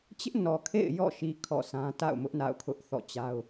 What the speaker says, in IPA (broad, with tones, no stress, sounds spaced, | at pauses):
t͡ɕ ɪ˦ ʔ n ɔ˨ kʰ ḛ˦˨ ɪ̯ j ɔ̰˦˨ ʃ i˨ kʰ ɔ̰˦˨ s ã˦ t a̰˦˨ ʊ̯ m ʊ˦ ʔ n a̰˦˨ ʊ̯ kʰ ʊ˦ ʔ θ ɔ̰˦˨ t͡ɕ a˦ ʊ̯